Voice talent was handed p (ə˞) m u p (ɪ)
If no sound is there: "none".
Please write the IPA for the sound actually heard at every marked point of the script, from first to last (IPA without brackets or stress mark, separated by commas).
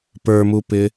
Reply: ə˞, ɪ